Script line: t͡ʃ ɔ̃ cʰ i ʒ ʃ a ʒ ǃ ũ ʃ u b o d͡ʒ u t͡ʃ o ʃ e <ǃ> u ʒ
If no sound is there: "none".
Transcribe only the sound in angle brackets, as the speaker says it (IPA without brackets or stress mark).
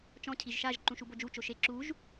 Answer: ǁ